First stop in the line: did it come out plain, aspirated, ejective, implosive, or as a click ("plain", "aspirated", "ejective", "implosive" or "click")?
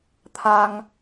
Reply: aspirated